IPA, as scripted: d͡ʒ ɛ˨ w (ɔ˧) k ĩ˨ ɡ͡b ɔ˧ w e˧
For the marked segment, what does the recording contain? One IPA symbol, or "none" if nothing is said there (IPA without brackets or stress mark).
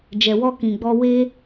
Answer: ɔ˧